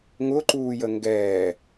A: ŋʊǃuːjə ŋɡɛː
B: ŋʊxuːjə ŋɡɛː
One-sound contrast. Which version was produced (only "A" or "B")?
A